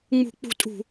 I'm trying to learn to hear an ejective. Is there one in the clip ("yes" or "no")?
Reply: yes